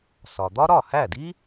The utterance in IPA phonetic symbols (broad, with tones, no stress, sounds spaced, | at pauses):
s ɒ˩ d̪ ɒ˥ ɾ ɒ˥˩ h æ˥˩ d i˥